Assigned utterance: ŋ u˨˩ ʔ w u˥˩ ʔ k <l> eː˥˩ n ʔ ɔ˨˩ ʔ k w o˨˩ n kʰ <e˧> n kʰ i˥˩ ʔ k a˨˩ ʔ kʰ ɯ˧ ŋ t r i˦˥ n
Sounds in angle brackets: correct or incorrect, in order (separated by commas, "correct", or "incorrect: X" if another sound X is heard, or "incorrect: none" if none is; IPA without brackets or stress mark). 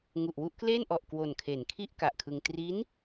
correct, incorrect: e˩˦